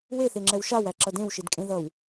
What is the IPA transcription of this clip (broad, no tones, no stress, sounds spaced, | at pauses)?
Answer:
w e θ e ŋ͡ǁ ɛ w ʃ a w æ ǁ ʌ d ẽ w ʃ i d kʼ ẽ ð ʌ w